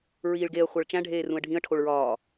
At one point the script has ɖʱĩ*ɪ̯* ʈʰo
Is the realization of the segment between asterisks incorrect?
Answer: yes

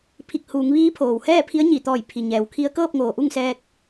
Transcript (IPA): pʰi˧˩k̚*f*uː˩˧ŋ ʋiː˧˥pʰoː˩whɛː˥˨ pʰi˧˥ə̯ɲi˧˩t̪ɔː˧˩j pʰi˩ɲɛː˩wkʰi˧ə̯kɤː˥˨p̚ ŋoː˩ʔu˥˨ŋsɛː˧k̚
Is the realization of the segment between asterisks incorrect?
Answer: yes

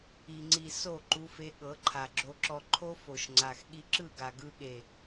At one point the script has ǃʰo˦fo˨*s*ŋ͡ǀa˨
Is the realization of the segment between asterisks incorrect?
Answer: yes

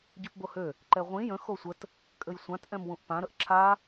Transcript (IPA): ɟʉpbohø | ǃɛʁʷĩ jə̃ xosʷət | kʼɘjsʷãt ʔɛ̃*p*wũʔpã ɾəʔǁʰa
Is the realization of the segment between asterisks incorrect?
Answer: yes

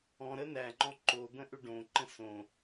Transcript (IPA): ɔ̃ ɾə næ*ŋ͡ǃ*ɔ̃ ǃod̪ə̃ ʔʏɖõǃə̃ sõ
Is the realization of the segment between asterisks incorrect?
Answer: no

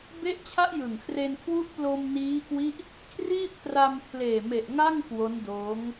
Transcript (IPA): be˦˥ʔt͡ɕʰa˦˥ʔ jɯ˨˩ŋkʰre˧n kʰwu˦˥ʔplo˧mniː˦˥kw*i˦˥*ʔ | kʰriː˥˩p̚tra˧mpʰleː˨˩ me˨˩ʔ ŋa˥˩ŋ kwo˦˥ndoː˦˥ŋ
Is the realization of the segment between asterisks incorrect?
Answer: no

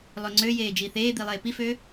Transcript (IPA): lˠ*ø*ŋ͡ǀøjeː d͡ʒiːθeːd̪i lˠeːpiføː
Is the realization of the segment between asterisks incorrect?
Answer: no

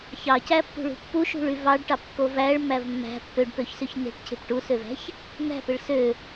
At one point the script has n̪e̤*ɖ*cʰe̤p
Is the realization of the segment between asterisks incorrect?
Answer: yes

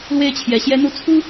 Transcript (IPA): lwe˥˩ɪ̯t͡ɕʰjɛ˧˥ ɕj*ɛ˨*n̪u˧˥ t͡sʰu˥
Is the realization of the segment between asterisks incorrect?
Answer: yes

